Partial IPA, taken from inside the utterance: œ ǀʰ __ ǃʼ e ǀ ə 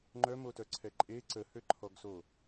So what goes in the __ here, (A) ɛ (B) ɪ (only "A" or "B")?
A